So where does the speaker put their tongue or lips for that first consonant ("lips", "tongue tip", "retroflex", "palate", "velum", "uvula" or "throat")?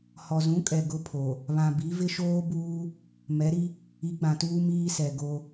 throat